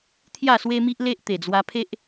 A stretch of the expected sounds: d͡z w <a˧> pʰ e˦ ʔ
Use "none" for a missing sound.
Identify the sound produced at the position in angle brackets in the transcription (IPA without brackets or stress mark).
a˧